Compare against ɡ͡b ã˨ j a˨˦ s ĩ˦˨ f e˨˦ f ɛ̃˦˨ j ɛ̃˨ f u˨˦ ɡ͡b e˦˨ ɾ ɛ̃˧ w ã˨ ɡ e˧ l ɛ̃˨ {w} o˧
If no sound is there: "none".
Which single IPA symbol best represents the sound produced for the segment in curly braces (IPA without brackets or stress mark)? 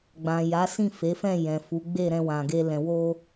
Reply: w